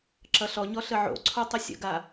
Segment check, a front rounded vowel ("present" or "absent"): absent